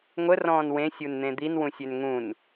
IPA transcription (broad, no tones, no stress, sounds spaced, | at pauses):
ŋʷ ə r ɔ̃ː n w ẽ sʲ u n n̪ ẽ d̪ i n w ũ sʲ ø n ŋ ũ n